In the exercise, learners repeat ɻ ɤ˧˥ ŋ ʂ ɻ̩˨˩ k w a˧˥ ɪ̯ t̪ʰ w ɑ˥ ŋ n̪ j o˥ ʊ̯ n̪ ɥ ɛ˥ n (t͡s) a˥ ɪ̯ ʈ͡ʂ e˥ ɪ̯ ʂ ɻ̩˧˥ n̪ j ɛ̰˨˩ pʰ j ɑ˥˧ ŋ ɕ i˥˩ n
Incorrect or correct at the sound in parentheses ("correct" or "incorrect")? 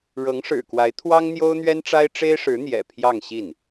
incorrect